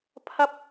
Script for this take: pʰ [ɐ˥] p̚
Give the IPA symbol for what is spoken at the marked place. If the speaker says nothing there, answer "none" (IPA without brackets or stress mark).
ɐ˥